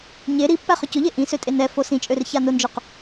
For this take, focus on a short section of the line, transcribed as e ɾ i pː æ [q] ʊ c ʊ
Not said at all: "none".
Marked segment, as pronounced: χ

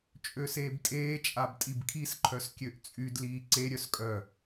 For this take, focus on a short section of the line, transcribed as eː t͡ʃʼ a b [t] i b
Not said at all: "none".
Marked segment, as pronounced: tʼ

